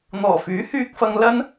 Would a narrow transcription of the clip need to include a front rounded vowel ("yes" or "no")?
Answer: yes